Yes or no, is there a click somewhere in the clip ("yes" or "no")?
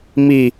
no